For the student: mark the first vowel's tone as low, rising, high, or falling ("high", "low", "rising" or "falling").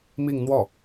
falling